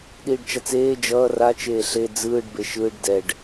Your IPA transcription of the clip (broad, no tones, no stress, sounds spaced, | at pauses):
ɗ iː ɖ t͡ʃ a t͡s eː d͡ʒ ʌː r a t͡ʃ eː ɬ e d͡z ɯː ɖ b e ʃ ɯː ɖ d ɛ ɖ